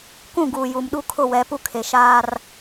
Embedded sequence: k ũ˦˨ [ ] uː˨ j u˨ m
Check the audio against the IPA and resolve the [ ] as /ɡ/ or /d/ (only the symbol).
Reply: ɡ